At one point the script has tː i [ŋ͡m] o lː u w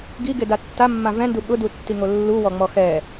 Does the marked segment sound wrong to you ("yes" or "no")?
yes